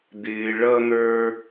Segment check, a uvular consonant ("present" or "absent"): absent